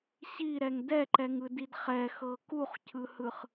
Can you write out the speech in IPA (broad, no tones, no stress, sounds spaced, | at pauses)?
ɕ i ɾ ɛ ŋ d ɛ ǃ ɛ ŋ ɯ d i d χ ɛ x ɤ k u χ cʰ ɯ h ɯ χ